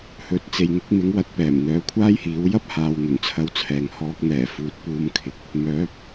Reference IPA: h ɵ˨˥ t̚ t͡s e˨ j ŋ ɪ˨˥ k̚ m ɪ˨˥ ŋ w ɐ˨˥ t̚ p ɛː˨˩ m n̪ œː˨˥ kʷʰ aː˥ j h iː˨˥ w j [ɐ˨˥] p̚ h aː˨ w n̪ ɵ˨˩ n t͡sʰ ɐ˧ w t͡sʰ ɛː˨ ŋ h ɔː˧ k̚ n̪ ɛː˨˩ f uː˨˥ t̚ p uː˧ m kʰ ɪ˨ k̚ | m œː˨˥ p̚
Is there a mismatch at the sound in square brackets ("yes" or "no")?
yes